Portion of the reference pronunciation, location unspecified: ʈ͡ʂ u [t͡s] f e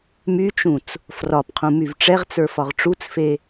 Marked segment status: correct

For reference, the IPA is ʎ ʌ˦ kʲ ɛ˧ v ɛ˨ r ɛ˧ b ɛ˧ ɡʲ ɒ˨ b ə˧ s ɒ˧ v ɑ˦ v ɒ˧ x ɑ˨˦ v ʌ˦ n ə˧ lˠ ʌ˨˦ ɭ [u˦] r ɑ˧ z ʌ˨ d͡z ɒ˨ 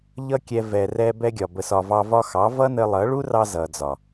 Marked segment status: correct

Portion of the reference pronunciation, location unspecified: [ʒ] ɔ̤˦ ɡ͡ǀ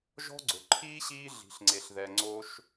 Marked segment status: correct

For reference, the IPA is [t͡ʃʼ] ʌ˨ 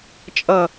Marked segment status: correct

